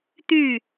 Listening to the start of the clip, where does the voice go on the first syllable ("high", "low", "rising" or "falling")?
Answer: falling